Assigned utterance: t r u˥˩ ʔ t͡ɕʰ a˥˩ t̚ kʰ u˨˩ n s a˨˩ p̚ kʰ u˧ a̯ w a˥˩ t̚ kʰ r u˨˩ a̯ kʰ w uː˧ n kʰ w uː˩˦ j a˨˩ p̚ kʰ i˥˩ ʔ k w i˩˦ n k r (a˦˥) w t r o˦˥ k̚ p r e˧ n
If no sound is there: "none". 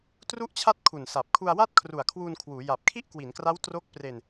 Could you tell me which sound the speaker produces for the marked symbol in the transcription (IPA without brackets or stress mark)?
a˦˥